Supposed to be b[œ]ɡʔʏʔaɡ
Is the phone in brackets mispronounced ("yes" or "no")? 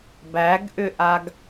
yes